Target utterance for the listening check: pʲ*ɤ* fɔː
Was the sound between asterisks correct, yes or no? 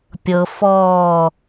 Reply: yes